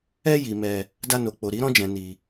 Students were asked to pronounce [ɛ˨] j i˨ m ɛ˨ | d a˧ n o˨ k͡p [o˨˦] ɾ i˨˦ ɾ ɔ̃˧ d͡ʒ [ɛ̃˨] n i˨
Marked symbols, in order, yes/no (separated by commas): no, no, yes